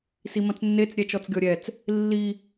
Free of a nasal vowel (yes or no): no